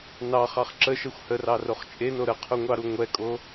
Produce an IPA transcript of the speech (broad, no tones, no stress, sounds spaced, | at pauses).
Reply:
n ɑ χ ɑ χ ǁ ə ʃ ɛ xʷ h ə r ɑ r o χ t͡ʃʼ e n o ɾ ə qʰ u ŋʷ ɑ ɾ u ŋʷ ɛ kʼ o